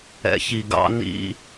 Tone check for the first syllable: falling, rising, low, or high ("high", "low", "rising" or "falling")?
low